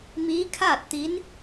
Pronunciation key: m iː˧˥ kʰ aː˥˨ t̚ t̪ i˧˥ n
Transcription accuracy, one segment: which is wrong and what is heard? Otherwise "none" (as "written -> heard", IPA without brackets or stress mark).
none